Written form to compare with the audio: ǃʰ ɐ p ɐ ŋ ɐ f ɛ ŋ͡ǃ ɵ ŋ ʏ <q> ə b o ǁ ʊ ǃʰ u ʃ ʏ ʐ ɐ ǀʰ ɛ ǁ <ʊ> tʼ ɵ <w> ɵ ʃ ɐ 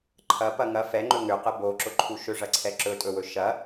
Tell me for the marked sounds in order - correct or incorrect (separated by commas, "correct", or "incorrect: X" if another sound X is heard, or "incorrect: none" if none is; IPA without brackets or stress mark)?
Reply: correct, incorrect: ɵ, correct